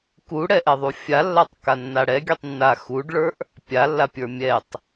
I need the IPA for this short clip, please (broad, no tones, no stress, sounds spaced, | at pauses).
k u ɽ ɛ ʔ ɛ ðˤ u fʲ a lː a tˤ k a nː a ɽ ɛ ɡʲ u tˤ nː a x u ɖ ɭ ə˞ ʔ | pʲ a lː a pʲ ə˞ mʲ ɛ tˤ